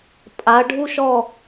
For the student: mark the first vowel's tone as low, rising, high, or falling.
rising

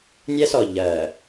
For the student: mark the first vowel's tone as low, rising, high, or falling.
high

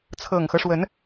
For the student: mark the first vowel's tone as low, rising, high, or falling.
low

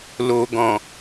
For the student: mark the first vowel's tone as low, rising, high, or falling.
low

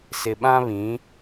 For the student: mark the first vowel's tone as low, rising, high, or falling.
low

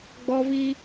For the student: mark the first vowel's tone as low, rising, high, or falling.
high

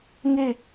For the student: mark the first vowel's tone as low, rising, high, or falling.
falling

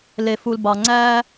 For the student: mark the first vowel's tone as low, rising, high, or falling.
low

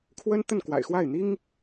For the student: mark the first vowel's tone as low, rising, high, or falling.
high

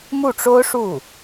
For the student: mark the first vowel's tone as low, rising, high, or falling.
falling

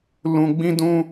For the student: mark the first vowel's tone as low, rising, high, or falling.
low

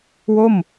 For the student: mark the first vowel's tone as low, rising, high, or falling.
falling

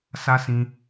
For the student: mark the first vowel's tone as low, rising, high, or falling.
high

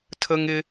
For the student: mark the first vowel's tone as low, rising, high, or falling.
high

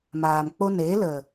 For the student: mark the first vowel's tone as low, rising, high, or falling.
low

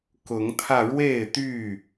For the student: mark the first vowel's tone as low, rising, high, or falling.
rising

